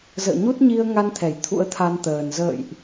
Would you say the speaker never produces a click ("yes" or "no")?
yes